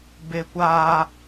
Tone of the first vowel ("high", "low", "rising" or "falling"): high